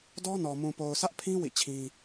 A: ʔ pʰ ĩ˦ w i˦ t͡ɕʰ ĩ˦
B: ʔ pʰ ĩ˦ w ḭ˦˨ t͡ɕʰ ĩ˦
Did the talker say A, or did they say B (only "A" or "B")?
B